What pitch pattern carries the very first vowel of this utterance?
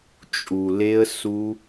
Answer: low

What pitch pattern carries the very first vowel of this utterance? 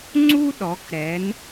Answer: high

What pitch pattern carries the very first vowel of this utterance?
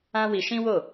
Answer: high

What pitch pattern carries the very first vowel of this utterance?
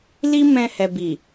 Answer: high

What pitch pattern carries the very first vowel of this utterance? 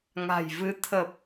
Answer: low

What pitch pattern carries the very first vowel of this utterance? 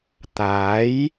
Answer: rising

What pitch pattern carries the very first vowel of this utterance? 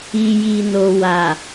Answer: low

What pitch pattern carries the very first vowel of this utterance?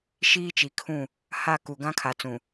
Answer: high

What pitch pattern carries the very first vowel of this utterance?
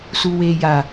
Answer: low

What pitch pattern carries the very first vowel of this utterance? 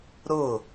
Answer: falling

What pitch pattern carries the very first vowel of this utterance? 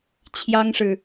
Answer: high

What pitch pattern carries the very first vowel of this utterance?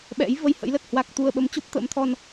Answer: rising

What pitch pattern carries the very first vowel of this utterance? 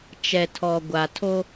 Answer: low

